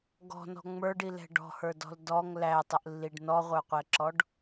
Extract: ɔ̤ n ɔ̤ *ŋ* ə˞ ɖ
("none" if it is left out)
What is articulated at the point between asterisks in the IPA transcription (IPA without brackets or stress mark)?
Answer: ŋ͡m